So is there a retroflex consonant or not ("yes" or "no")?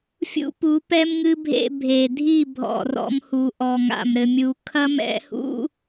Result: no